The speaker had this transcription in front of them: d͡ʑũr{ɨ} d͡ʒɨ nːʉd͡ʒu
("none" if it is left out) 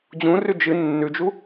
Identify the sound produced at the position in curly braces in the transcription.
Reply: ʉ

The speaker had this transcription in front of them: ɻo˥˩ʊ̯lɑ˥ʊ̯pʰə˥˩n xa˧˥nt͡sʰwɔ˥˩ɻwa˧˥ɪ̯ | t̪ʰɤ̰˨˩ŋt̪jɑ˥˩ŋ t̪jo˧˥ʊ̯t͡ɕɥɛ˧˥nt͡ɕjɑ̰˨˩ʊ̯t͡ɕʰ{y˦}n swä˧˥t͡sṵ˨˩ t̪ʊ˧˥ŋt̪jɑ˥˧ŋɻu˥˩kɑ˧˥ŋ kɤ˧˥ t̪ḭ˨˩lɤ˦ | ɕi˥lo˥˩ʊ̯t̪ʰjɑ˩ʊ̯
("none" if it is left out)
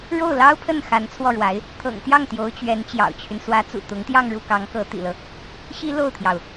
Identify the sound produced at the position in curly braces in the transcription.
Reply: y˦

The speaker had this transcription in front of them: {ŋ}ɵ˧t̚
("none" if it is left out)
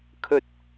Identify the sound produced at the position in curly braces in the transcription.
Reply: kʰ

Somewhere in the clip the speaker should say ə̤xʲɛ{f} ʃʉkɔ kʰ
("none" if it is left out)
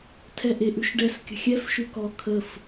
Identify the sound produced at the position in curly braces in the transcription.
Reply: f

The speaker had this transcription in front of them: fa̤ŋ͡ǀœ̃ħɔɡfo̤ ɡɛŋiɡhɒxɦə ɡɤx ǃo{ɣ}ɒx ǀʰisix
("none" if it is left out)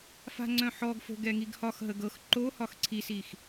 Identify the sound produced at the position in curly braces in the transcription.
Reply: h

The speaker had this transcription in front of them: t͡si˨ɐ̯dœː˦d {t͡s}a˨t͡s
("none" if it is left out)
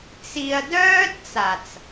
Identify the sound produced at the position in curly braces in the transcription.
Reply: t͡s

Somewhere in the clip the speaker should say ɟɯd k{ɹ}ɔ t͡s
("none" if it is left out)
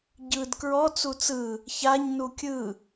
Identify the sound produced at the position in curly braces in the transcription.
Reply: ɹ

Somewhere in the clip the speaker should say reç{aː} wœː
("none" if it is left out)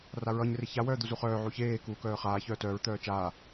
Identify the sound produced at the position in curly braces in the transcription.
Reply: a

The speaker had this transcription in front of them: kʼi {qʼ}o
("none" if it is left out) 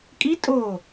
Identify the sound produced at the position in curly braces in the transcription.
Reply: tʼ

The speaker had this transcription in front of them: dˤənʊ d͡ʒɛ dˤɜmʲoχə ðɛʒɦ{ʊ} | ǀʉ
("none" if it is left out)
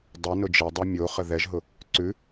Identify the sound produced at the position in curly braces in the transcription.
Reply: ʊ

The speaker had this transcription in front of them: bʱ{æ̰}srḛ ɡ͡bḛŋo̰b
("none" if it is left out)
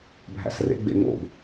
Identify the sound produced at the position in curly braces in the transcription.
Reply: æ̰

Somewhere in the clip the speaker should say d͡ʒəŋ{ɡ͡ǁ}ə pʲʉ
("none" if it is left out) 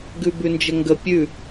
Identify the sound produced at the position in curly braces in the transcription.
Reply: ɡ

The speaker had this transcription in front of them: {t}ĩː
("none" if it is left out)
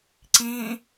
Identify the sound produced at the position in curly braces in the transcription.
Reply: ǀ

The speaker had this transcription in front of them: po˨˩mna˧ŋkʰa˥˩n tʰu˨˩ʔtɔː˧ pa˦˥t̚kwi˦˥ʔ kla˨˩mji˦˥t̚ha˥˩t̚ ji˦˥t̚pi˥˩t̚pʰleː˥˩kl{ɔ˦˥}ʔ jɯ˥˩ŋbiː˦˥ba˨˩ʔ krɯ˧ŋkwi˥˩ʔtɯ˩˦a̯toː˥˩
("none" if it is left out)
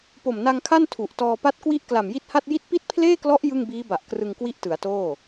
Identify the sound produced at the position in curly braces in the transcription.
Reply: ɔ˦˥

